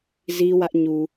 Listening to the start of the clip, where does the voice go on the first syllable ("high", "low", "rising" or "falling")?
high